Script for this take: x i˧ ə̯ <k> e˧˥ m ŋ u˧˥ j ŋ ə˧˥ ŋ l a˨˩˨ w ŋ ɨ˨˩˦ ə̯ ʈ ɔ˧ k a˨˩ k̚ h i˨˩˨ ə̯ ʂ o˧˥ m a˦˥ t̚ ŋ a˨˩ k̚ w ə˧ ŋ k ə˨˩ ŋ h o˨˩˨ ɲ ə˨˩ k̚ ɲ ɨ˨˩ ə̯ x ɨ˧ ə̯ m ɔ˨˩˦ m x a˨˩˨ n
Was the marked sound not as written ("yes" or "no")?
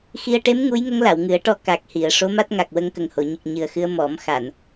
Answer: yes